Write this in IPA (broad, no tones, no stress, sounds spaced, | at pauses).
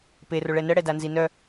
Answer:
p e r o ɭ ɛ n ə ɽ ɛ d a n z i n œ